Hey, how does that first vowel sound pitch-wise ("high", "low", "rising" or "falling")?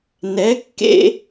rising